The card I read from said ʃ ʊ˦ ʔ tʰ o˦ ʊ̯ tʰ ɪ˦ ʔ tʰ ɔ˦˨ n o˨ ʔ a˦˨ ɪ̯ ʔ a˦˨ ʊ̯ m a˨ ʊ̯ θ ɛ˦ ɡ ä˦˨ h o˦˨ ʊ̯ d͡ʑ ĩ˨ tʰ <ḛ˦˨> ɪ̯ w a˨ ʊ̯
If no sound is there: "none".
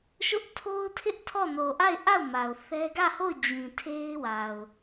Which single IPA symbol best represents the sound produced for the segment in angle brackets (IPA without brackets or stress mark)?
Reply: e˦